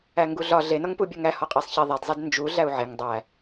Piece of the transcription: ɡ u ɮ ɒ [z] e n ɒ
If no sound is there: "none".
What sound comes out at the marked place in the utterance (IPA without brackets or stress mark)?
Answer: ɮ